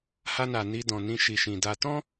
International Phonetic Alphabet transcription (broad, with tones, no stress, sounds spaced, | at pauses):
h a˧ n a˨ n i˧ d ɔ̃˨ n ĩ˧ ʃ i˨ ʃ ĩ˨ d a˧ t ɔ̃˦